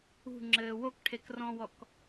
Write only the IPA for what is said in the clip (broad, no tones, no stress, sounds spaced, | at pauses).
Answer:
ṳ ŋ͡ǁ ɘː w o k ʈʰ e k r ɔ̃ w ɔ k